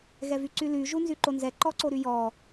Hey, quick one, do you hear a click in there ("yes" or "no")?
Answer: yes